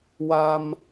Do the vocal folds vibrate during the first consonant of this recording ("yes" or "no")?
yes